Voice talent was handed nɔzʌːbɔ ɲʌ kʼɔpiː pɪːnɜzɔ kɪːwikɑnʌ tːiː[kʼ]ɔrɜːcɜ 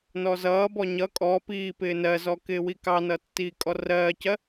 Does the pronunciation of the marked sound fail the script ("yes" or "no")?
no